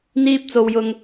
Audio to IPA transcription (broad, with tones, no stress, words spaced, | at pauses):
n̪iː˥p̚t͡so˧wjʊ˧ŋ